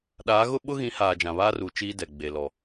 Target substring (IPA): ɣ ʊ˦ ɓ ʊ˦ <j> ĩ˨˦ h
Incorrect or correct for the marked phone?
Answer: incorrect: ɣ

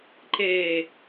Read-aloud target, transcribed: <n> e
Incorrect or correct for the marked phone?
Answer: incorrect: ǃ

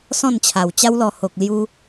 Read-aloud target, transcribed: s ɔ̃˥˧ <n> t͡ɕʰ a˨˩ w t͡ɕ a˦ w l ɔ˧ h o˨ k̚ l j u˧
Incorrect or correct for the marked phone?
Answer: correct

